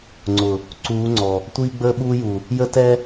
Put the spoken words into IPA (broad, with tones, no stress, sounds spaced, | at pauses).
ŋ͡ǀ ʊ˨ | ǀ uː˨˦ ŋ͡ǀ ɔ˨ | tʷ iː˦ ɡ͡b əː˦ ɓ uː˦ j u˨ | j ə˦ t ɛ˦